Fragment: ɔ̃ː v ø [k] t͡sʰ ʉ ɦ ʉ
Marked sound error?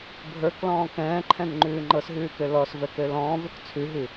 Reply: no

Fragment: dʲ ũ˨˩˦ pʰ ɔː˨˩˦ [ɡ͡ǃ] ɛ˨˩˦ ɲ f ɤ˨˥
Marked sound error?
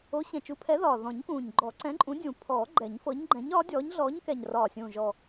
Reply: no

